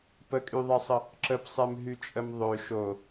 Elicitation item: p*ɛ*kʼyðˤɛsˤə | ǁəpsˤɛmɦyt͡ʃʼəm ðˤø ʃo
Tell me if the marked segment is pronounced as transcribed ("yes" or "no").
no